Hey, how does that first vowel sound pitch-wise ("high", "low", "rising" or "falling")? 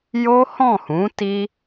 high